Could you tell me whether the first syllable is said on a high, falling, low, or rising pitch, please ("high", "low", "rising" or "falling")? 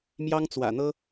high